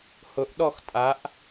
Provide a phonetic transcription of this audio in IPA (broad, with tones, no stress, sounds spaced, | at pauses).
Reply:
h ʊ˧˥ ʔ ɗ ɔ˥˧ x tʼ a˧˥ ʔ